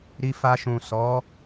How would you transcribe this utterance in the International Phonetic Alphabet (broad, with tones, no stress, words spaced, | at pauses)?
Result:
ɾi˧fa˧ʃũ˨ sɔ˨˦